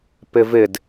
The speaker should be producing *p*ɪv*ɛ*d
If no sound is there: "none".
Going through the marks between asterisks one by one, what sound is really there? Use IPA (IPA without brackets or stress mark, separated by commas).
p, ɪ